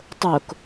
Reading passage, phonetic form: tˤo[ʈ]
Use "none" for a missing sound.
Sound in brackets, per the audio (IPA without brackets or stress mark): k